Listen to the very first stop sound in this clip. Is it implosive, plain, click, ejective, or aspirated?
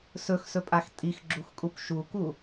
ejective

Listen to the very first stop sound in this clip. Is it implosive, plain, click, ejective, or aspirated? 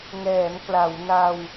plain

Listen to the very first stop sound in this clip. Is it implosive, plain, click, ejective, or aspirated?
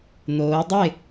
plain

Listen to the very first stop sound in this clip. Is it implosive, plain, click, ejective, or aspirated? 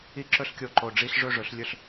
click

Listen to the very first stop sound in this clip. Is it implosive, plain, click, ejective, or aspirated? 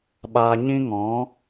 implosive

